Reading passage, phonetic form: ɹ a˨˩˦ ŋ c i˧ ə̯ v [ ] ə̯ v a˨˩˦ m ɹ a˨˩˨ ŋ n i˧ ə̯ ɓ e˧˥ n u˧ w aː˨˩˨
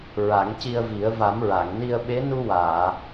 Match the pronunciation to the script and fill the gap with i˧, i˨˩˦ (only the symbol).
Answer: i˨˩˦